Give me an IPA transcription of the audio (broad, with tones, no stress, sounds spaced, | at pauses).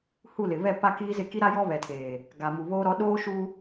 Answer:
h u˦˨ l ɪ˨ β ɛ˦˨ p a˦ k iː˦ z ɪ˦˨ k i˦ ɾ a˦ j ɔ˦ β ɛ˨ tʰ eː˨ | ɡ a˨ m u˨ β oː˦ ɾ ɔ˦ ɗ oː˦ ʃ u˦